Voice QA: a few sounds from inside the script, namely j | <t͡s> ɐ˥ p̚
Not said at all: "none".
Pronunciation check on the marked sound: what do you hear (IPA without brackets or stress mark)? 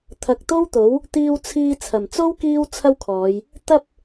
t̪